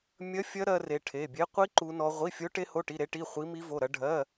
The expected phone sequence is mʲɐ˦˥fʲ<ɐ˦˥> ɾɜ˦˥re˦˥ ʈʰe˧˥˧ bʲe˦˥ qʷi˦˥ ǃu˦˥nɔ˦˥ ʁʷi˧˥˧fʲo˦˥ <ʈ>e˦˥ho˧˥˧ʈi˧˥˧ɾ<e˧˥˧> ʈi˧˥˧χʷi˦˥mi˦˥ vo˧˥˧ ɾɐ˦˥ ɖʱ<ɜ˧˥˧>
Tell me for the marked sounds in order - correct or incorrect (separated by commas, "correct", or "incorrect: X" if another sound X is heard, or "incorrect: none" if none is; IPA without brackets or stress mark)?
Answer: correct, correct, incorrect: e˦˥, correct